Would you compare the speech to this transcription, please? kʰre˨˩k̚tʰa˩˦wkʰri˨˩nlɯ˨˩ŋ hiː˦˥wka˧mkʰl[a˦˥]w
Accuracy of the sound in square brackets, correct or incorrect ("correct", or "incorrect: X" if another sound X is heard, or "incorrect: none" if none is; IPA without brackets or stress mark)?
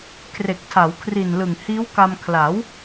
incorrect: a˩˦